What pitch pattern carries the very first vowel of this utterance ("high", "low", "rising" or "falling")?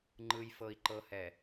low